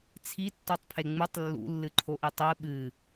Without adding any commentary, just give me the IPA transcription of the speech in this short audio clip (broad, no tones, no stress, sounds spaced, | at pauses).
t͡sʰ i tː o tˤ pʰ e ŋ͡m ɨ tˤ lː ṵ lː ɨ ǃʰ o ʔ i tˤ ɨ ɓ ɨ